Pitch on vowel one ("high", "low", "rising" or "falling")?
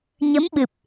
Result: rising